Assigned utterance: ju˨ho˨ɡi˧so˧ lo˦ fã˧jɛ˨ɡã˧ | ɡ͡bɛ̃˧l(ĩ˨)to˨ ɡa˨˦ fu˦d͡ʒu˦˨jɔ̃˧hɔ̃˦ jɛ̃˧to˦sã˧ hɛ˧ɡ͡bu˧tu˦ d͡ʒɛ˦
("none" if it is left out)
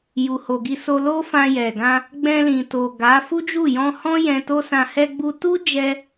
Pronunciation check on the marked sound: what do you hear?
ĩ˨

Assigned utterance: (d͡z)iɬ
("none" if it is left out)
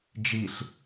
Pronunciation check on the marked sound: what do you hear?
d͡ʒ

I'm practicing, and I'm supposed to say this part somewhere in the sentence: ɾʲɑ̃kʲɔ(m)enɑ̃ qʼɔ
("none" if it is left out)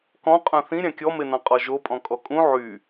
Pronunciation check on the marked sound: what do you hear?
m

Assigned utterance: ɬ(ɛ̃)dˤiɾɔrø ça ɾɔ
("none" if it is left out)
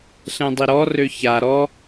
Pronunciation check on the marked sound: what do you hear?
ɛ̃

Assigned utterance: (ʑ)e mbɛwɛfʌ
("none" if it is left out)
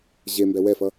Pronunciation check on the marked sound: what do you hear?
ʑ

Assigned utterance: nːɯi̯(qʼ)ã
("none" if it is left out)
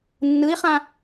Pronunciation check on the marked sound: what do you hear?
χ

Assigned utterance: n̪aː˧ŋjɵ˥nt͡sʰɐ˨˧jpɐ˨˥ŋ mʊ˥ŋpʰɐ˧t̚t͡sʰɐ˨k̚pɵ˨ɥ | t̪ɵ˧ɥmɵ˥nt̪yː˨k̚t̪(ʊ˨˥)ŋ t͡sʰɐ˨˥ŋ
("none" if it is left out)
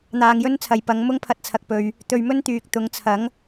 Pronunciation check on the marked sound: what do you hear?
ʊ˨˧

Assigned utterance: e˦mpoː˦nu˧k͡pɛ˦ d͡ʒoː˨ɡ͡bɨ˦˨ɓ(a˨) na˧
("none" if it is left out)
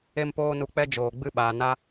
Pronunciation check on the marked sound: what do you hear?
aː˨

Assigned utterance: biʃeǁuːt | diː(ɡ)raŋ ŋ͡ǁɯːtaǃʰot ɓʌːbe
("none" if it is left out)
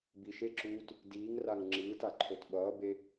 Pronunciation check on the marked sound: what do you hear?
ŋ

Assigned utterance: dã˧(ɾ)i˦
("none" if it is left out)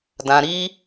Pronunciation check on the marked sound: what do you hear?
ɾ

